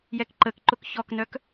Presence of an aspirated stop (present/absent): absent